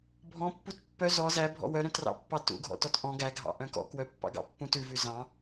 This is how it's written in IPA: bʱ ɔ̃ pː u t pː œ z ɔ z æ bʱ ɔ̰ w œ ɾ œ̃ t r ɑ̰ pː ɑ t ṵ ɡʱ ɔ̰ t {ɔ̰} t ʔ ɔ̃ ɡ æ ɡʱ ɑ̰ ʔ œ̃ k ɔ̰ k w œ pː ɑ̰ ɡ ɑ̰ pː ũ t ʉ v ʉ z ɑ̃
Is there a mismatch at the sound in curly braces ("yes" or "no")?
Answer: yes